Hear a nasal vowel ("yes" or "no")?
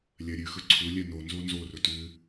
no